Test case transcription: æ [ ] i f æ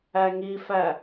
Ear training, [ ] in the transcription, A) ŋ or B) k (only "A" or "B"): A